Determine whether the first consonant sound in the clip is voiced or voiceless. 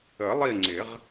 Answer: voiced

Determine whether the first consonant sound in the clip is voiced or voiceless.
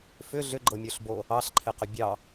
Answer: voiceless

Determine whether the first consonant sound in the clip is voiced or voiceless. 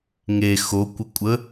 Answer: voiced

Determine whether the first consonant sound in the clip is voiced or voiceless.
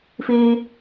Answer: voiceless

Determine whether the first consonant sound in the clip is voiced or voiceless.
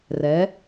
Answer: voiced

